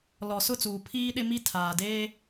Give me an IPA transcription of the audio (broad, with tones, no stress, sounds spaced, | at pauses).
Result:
l ɔ˨ s ʊ˦˨ t͡s uː˨ pʰ iː˦ ɗ ɪ˦ m i˦ tʰ aː˨ d eː˦